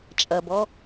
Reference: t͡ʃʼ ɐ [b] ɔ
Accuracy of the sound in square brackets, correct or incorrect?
correct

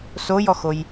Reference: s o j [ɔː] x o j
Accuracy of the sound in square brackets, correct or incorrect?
incorrect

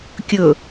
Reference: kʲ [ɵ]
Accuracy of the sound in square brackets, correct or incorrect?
correct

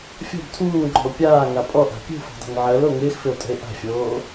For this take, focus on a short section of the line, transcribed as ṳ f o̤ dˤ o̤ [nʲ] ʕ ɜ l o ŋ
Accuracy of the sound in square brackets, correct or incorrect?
incorrect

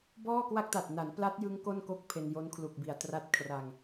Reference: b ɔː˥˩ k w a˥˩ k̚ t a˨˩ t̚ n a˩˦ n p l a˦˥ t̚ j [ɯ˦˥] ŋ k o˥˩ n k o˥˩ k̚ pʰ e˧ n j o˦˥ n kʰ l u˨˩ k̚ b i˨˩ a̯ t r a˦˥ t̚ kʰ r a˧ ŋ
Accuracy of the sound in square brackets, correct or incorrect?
correct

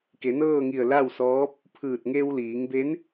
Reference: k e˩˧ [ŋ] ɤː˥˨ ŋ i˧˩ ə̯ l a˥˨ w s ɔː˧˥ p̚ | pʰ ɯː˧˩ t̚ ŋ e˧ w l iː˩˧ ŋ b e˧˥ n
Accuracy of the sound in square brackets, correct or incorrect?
incorrect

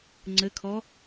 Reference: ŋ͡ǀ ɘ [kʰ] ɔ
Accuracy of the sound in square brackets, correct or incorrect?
correct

